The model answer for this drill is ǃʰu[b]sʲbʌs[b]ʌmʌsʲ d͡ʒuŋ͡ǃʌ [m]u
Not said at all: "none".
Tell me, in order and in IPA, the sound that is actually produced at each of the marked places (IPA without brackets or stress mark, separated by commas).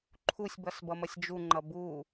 none, b, b